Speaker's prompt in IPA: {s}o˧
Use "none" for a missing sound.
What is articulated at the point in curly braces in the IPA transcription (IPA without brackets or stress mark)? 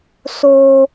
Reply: s